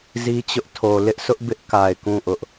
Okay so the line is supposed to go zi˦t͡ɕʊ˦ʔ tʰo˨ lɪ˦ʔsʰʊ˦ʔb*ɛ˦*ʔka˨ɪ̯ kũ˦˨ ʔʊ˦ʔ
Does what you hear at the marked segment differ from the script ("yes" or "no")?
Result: yes